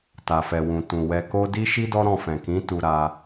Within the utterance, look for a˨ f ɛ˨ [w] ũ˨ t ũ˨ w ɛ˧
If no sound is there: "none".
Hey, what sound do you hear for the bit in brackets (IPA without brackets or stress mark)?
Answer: w